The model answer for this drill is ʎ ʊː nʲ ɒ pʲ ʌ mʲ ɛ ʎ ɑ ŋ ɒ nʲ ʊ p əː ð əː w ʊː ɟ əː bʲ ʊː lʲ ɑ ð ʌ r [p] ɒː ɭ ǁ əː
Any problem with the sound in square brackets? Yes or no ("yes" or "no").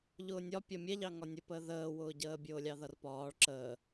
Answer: no